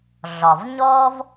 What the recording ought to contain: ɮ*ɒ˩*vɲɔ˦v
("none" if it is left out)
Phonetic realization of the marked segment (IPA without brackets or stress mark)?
ɒ˩